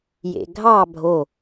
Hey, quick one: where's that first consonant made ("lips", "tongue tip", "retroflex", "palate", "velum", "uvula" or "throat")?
palate